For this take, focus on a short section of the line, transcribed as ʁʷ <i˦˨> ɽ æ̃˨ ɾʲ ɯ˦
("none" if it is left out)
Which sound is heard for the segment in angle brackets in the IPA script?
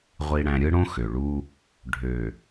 i˨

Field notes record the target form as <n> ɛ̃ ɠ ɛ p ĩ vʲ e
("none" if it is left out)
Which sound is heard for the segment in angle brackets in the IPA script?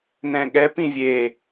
n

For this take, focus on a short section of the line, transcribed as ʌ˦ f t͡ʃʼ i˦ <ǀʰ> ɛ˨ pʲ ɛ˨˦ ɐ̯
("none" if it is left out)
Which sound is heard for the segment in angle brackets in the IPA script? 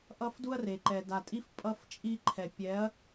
ǃʰ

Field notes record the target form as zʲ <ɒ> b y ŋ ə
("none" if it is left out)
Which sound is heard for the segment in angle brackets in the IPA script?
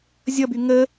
ʌ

